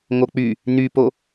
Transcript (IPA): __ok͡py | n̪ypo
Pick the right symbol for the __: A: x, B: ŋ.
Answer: B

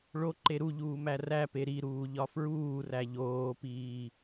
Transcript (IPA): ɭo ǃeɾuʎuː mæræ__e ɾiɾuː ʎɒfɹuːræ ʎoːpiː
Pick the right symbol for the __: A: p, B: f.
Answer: A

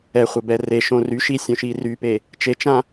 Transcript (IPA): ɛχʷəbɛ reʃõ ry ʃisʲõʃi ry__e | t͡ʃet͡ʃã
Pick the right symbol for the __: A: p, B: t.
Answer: A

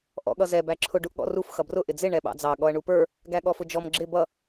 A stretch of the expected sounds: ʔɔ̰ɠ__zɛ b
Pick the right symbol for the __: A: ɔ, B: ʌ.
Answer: B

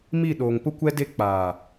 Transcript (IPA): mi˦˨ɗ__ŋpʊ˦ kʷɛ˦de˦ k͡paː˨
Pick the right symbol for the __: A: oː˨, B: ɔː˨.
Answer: A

